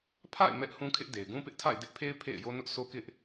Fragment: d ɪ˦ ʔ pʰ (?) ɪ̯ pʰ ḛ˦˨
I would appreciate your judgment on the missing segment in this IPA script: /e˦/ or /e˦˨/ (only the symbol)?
e˦